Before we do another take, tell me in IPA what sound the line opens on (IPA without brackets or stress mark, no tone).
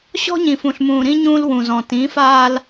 ɕ